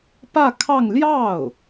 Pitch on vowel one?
falling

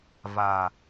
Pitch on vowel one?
low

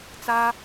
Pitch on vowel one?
high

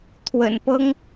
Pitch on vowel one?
low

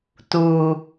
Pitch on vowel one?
low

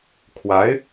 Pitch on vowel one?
rising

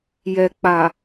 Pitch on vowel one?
low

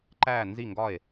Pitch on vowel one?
falling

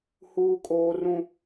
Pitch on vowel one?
high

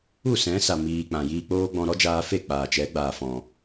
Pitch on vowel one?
falling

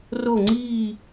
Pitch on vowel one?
falling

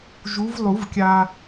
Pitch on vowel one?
rising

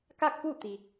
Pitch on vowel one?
falling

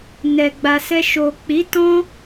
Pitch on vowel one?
low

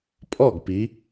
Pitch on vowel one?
falling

